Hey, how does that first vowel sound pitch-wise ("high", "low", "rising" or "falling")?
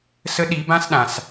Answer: rising